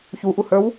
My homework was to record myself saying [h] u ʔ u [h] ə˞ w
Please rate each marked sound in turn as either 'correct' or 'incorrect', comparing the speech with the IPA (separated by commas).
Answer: incorrect, correct